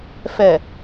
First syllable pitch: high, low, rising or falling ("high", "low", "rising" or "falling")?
low